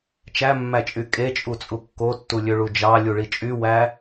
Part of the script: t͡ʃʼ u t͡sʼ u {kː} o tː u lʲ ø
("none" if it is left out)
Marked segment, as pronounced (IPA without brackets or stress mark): kː